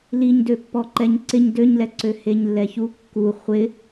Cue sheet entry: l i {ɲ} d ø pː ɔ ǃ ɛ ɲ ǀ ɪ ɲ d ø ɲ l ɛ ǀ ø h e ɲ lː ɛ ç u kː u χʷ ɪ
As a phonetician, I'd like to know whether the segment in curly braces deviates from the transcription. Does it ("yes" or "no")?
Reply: no